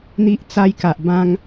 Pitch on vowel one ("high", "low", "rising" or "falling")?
high